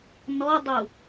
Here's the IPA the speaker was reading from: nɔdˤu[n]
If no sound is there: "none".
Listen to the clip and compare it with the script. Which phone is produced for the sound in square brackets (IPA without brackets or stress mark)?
none